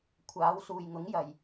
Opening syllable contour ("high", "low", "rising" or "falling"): rising